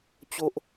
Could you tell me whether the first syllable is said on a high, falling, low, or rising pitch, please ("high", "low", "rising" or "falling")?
high